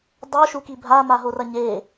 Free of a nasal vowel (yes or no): yes